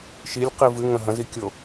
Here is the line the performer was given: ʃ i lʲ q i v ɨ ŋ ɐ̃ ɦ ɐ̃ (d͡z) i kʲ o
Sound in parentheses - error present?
yes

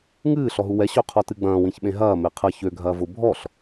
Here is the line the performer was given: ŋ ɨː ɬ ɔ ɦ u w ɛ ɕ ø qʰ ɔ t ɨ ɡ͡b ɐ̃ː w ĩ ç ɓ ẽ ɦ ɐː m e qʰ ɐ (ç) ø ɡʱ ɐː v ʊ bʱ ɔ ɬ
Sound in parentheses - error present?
no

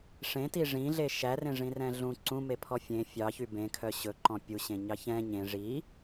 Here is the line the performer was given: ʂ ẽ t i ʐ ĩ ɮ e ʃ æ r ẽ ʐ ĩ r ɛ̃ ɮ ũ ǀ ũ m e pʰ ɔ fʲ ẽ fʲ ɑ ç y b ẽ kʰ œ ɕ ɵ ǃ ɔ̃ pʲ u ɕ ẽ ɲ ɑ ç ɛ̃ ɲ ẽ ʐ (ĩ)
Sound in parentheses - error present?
yes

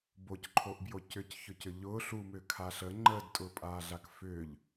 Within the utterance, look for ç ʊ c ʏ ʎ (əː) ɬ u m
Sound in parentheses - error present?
yes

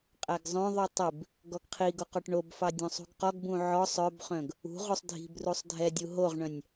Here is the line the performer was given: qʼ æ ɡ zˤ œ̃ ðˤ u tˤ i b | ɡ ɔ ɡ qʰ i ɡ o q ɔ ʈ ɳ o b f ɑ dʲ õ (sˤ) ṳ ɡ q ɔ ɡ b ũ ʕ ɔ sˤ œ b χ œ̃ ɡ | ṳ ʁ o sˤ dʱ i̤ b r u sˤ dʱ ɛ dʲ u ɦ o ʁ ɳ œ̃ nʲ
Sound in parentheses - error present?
no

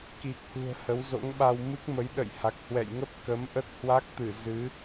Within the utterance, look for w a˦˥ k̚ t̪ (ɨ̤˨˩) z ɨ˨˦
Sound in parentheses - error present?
yes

